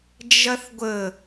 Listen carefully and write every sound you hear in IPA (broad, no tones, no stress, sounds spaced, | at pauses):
d͡ʒ ɐ θ ɡʷ ə